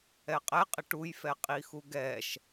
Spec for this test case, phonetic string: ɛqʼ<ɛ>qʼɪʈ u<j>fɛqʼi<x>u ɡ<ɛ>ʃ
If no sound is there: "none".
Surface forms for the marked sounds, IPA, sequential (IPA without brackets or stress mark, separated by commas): ɛ, j, x, ɛ